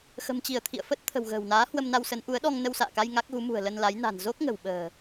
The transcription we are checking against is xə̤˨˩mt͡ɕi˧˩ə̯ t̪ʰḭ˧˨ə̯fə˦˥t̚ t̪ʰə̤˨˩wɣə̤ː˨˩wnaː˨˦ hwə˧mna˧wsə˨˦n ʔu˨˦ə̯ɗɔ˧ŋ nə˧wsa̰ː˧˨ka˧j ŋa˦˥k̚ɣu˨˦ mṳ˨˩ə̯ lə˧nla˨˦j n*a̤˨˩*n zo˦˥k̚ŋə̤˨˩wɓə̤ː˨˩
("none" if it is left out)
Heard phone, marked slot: a̤˨˩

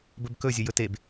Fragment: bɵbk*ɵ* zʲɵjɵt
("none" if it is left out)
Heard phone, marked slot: ɵ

